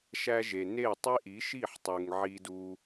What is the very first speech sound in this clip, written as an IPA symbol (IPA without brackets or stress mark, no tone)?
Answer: ʃ